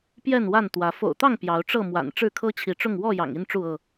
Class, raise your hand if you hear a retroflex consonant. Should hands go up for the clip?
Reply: yes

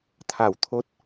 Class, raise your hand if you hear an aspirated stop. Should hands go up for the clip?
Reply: yes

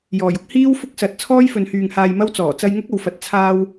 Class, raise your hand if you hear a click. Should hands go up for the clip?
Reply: no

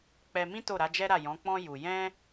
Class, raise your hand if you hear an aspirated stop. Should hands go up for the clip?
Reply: no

